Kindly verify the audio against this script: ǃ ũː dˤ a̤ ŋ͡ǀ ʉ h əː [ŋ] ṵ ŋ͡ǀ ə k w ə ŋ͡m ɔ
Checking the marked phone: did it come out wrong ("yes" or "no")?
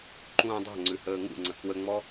no